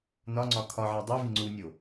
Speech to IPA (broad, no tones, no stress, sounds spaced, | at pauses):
n ɒ ŋ͡ǀ ɒ kʰ ɒ ʕ æ dˤ i v i ŋ͡ǀ u nʲ o